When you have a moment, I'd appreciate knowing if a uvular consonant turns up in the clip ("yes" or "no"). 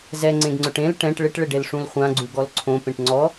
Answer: yes